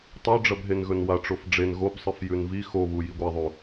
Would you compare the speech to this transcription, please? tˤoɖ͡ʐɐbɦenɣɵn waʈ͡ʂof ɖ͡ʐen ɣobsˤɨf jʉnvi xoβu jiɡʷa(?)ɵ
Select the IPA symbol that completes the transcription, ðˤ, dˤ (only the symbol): ðˤ